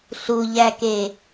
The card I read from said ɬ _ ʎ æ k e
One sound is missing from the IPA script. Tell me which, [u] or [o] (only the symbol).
u